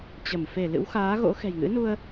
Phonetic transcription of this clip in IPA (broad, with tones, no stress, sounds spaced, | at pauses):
t͡ɕ ə˧˩ m f e˧˩ l ɨ̰˧˥ w x aː˨˦ ɣ o̰˧˥ x ɛ̤˨˩ j ŋ ɨ̰˧˥ n u˧ ə̯